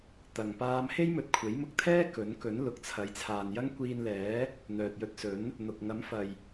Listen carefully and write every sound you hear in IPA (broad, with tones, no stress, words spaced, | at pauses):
t̪ɐ˨ŋ paː˧mhe˥j mɵ˨t̚kʷʰe˨˥jmʊ˧k̚t̪ʰɛː˥ kɵ˨˥nkɵ˨˥n lʊ˨k̚t͡sʰɐ˨˥j t͡sʰaː˨njɐ˥ŋkʷiː˧nlɛː˨˥ | n̪œː˨t̚jɵ˧t̚sɵ˨˥n | n̪ʊ˨k̚ ŋɐ˨˥mfɐ˨j